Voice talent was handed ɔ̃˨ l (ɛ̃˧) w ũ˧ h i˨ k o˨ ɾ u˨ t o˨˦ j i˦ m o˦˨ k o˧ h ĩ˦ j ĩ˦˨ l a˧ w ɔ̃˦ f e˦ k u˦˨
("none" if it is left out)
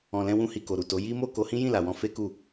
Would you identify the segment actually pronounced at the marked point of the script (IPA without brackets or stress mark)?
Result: ɛ̃˧